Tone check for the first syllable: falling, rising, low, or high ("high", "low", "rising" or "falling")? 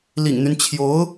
low